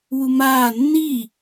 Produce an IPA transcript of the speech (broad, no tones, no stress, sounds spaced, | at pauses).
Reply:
w u m aː nː i